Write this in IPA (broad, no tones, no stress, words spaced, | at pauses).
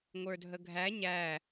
ŋʷə˞dʱəɡʱæ ɲæ